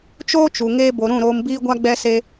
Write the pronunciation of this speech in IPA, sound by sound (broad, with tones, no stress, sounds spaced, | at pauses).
t͡ʃ oː˦ t͡ʃ u˨ ŋ eː˧ b o˨ ɾ ũ˦˨ ɾ oː˧ m b iː˦ ɡʷ a˦ ɡ͡b ɛ˦ s e˦